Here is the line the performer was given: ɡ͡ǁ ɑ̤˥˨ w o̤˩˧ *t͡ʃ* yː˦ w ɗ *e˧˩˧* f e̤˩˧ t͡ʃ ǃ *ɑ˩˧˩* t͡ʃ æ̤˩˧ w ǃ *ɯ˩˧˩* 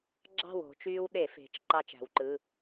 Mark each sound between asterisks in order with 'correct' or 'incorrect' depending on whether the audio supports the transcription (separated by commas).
correct, correct, incorrect, correct